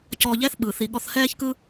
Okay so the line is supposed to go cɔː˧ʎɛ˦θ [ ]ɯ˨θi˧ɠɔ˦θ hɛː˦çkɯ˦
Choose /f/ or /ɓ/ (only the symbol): ɓ